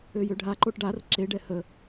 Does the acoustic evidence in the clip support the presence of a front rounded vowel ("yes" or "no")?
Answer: yes